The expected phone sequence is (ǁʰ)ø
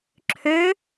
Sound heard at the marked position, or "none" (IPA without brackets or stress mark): ǁʰ